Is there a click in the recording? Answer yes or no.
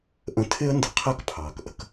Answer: no